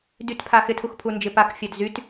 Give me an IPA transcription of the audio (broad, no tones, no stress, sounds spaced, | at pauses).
d y t pʰ a x ɪ tʰ u x pʰ u n d͡ʒ ɪ p a k fʲ a d z y t